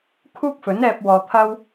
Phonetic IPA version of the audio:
kʰ uː˥ k̚ f ɵ˨˥ n ɛː˧ p̚ w ɔː˨ t̪ʰ ɐ˥ w

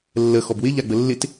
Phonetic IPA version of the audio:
lː ə x ɔ b w ɪ ʎ a ɡ͡b ə lː ɪ t

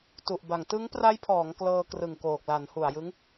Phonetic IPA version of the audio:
t u˨˩ ʔ b a˨˩ ŋ t ɯ˦˥ ŋ p r a˦˥ j pʰ ɔː˩˦ ŋ k l ɤː˧ k r ɯ˨˩ ŋ k oː˨˩ k̚ l a˩˦ n h u˨˩ a̯ j ɯ˦˥ ŋ

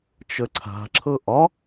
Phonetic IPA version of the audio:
t͡ʃ ə ǀʰ a̤ ǁʰ ɤ ʔ ɒ

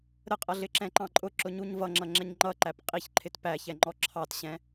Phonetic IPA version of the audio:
ɾ ə qʼ ʌ ɮ ɪ ǁ ɛ̃ ǃ ɑ̃ ǃʼ ʊ ǁ ʊ ɲ u ɲ v ʌ ŋ͡ǁ ʌ ŋ͡ǁ ɛ ɲ ŋ͡ǃ ʌ ǃ æ p qʼ i ç ǃʰ ɪ t p æ ç ɛ ŋ͡ǃ ɔ ǁʰ ɑ t ɕ ɛ̃

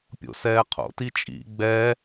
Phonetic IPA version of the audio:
pʲ o̰ s ɛː qʰ o̰ t i t͡ʃʼ ḭ ɡ͡b ɛ

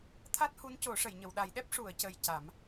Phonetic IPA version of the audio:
t̪ʰ a˦˥ t̚ h u˧˥ n c o˨˩˦ ʂ ə˨˩˨ j ɲ ə˨˩˨ w ɗ a˨˩˦ j ɗ ɛ˦˥ p̚ ʂ u˨˩˨ ə̯ c ə˨˩ j c a˨˩˦ m

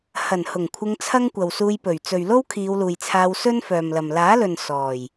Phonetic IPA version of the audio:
h ɐ˨˩ n h ʊ˨˩ ŋ kʷʰ ɪ˧ ŋ t͡sʰ ɐ˥ ŋ kʷ ɐ˨ w s uː˧ j p ɵ˨˩ ɥ t͡s ɵ˨ ɥ l o˥ w kʰ iː˨˧ w l uː˨ j t͡sʰ aː˧ w s ɵ˥ n f œː˨ m l ɐ˨ m l aː˨˥ l ɵ˨ n s ɔː˨˩ j

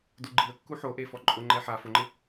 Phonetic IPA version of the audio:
d u ɡ͡ǃ i ə̯ kː u ħ o ʔ e f ɔ ǃʼ ʊ ŋ͡ǃ ɛ ħ a f ʊ ŋ͡ǃ ɪ

